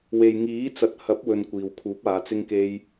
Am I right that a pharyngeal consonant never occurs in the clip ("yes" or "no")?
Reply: yes